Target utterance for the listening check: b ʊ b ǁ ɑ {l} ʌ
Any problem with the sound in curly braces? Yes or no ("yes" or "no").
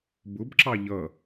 yes